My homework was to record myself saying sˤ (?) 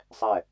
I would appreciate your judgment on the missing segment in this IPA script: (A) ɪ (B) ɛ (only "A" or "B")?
B